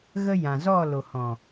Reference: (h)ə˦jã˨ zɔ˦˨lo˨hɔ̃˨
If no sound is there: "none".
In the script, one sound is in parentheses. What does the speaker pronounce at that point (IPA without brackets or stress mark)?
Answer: ɣ